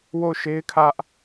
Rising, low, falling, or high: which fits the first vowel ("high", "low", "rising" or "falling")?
falling